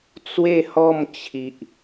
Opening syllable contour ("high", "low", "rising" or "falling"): falling